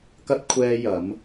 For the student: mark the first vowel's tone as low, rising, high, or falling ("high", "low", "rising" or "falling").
high